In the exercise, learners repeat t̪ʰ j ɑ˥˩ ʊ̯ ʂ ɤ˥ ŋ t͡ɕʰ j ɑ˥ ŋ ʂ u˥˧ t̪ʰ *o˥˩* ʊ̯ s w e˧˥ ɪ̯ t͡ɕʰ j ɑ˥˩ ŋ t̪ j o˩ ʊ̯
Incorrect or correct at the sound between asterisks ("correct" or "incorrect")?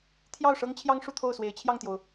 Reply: correct